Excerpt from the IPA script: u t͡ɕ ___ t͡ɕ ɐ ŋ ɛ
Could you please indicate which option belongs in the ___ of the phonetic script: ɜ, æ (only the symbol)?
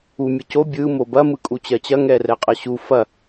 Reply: ɜ